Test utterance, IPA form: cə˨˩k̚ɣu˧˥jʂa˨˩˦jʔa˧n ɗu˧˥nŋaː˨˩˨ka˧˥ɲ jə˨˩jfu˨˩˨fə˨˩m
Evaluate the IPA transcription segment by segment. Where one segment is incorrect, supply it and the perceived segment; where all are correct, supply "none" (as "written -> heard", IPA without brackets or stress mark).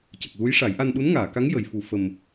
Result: ɲ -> ŋ